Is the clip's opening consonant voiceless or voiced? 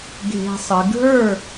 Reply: voiced